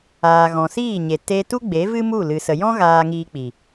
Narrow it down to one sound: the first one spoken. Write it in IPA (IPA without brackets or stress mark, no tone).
aː